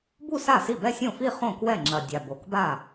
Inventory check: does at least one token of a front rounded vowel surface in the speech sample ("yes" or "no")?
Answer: no